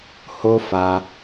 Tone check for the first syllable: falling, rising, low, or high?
high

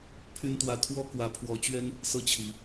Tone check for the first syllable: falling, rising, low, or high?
high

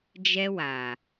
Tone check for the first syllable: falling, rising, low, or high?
high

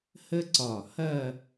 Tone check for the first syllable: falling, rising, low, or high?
high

